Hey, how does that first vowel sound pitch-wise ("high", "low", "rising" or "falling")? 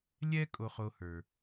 high